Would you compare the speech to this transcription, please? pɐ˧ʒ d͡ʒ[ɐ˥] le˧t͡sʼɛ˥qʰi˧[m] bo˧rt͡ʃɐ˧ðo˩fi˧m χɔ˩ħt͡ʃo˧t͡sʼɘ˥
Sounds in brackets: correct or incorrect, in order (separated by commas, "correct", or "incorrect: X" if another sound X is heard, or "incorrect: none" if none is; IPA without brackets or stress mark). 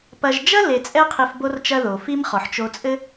correct, incorrect: f